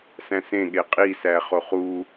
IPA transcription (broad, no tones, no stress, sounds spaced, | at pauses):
s æ̃ s ẽ ɠ e qʼ i s æ χ o χ u